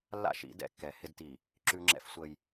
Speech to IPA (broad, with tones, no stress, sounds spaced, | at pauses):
lː a̰˦˨ ʃ ḭ˨˦ d ɛ̰˨ kː ɛ˨˦ h ɪ˦ d t i˨ | ǁ ʉ˦ ŋ͡ǁ ɛ̰˦ f sʷ əː˦ j